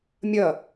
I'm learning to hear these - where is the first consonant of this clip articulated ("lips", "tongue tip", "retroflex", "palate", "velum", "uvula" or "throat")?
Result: lips